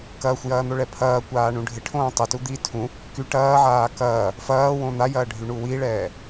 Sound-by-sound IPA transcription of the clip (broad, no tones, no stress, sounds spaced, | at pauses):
k ɐː xʷ j ɐː n̪ o ɭ ɛ pʰ ɐː kʷ aː ɳ ũ ɖʱ ɪ ʈʰ õː tˤ ɪ t u d̪ i tʰ ũ | k y ʈ ɐː ʕ aː k ɐː | f ɐː w õ n̪ a j ɐː ɖʱ y ɳ u w i ɭ ɛː